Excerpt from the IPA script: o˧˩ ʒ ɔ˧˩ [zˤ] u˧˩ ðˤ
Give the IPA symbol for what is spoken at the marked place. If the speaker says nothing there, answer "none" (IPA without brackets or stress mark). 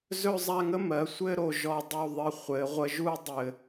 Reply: dˤ